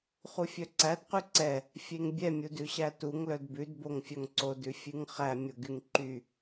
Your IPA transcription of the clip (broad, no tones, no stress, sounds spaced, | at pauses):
χ u fʲ œ ǀ æ d q ʉ ǀ ɛ | fʲ e ŋ bʲ ɛ mʲ u d ʉ ɕ æ t u ŋ l œ d b ʉ d b o ŋ fʲ œ ŋ ǀ o d ʉ fʲ ʉ ŋ χ æ mʲ o ɡ y ŋ ǃ y